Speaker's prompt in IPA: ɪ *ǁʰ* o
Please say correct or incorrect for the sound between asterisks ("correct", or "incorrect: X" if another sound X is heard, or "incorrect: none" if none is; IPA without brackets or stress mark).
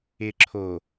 correct